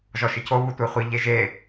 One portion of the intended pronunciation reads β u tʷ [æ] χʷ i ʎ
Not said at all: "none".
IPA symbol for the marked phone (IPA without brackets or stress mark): ɛ